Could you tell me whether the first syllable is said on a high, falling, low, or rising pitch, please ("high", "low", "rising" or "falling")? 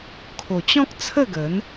low